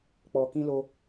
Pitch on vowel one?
low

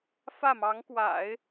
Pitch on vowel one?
falling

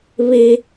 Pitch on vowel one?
high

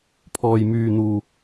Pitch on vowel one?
low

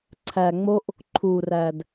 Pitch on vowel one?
low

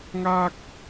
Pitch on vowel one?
high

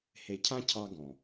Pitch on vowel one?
low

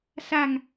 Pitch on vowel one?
low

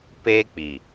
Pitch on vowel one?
high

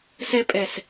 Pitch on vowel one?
high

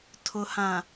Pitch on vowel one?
low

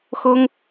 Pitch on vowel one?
high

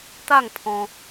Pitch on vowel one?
falling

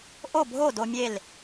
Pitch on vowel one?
falling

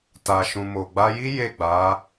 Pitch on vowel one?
low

